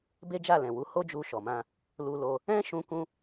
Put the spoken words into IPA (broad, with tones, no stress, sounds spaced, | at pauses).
b e˦ d͡ʒ a˦˨ l ɛ̃˨ w u˨˦ h o˦ d͡ʒ u˧ ʃ ɔ˨ m ã˧ | l u˧ l o˧ | ɛ̃˦ ʃ ũ˧ k ũ˦